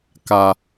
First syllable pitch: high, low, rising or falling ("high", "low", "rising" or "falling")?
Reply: low